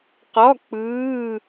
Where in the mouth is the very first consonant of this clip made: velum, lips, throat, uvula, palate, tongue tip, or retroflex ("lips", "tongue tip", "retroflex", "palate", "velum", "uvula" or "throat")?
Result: uvula